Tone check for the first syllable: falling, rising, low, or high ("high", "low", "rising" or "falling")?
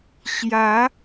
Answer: rising